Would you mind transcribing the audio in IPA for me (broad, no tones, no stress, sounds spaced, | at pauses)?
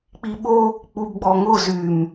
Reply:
k͡p i ɓ o | k͡p u b ɡ͡b ɔ ŋ ʊ z y m